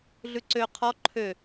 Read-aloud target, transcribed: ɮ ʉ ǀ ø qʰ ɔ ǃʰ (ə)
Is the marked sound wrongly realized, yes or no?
yes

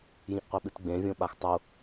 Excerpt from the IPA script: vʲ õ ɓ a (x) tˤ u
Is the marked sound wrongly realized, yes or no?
no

